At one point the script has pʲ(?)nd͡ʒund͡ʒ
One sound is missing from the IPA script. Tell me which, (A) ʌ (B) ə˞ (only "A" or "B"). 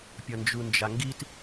A